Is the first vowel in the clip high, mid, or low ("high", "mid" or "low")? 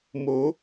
mid